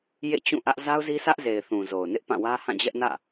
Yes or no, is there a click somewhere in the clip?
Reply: no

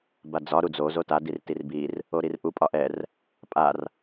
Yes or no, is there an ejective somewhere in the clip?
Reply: yes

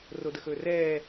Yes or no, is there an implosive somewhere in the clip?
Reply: no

